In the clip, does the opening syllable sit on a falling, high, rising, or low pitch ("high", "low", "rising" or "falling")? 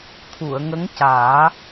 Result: low